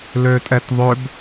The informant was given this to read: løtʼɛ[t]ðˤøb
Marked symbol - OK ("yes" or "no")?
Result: yes